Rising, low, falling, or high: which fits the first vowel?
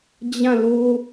falling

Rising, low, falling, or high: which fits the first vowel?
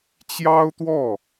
high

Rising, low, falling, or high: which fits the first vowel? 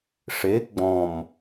rising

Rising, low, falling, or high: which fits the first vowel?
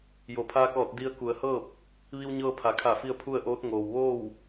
low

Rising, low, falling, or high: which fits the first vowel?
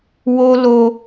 high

